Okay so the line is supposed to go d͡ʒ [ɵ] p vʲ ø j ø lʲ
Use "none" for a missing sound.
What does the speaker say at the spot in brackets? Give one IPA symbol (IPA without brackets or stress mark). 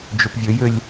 ɵ